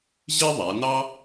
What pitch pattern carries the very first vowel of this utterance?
high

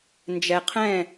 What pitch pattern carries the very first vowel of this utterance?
low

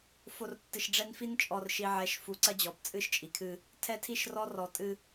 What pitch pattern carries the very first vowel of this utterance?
low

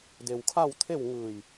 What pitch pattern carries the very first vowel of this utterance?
low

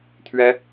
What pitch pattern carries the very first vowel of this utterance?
high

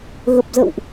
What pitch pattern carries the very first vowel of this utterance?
low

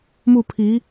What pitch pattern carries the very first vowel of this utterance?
falling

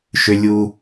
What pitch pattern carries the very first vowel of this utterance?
low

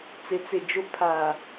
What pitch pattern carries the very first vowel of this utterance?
rising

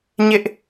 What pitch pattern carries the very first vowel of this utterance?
high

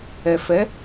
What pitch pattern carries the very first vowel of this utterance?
low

